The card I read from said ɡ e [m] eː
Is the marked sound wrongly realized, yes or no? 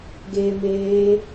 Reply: no